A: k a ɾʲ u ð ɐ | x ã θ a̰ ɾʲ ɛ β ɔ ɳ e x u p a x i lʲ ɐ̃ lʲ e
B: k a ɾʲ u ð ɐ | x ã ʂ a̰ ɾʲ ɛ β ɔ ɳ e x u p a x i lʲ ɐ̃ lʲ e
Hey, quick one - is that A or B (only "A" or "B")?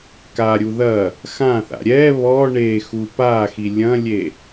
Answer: A